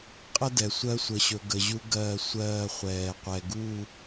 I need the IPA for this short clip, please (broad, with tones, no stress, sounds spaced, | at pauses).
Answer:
qʼ ə˦ d ɛ˨ sʷ ɜ˦ sʷ ə˨ ɕ ɵ˨ ɡ ə˨ ʑ u˦ ɡ ɜː˦˨ sʷ ɜː˦˨ χʷ ɛː˨ qʷ ɛ˨ ɡ u˦˨